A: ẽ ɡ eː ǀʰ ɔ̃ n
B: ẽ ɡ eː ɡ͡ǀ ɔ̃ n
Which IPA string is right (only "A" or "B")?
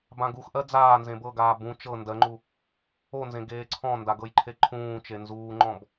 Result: A